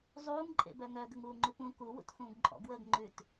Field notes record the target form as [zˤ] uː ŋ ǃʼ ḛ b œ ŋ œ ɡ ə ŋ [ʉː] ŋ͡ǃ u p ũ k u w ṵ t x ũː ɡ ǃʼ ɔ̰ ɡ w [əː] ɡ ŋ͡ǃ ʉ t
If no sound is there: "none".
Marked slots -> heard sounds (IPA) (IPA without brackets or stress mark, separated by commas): zˤ, uː, əː